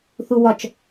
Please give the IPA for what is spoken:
θ u w ɒ t͡ʃ

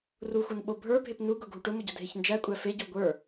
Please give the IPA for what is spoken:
r u xʷ ɤ n ɓ o bʱ ə˞ bʱ e p n u ɡ ʊ ɡʱ u ʈ ʊ m ʊ ɟ ʊ dʱ e ç n d͡ʒ æ kʷʼ æ f e ɟ o ɡʷ ə˞

